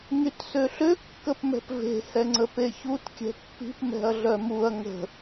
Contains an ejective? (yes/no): no